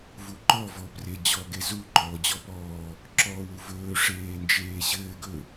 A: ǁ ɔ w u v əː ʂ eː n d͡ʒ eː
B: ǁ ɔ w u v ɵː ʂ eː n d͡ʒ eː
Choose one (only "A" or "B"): B